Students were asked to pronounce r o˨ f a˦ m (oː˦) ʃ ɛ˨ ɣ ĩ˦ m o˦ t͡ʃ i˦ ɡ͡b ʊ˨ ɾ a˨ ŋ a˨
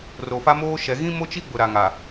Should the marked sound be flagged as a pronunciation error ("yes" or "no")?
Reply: no